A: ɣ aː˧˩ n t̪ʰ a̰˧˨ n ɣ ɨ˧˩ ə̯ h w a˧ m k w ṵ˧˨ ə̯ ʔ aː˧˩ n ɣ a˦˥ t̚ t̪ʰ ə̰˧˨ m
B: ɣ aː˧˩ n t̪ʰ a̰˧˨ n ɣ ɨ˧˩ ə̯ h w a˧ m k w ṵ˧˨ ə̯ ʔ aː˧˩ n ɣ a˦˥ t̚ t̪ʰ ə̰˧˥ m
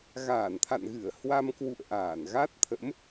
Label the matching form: B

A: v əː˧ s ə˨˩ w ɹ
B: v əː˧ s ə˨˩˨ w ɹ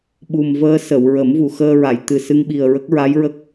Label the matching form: B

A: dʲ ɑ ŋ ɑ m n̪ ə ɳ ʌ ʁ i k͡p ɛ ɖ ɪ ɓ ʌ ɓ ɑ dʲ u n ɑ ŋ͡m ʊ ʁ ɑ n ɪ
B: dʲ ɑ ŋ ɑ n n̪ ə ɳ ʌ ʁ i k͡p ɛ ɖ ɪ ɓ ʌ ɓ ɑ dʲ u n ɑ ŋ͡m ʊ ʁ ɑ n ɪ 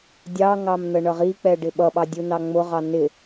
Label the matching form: A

